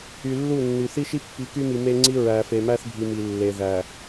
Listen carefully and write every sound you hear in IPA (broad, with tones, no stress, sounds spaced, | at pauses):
y˨ lː u˦˨ nː y˨ θ i˦ ʃ i˦ pː i˨˦ k y˦ m i˨ m e˦ ŋ͡ǀ i˦ ɹ æ˨ f e˨ m æ˦ θ bʱ i˨ m i˨ lː e˨ ð æ˨